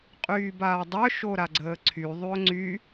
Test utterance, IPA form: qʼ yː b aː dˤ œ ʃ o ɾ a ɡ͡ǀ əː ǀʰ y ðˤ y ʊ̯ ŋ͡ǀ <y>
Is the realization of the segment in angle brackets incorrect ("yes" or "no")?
no